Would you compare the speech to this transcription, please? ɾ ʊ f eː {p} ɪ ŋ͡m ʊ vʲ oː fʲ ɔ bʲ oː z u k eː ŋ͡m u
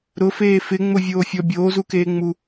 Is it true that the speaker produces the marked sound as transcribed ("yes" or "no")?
no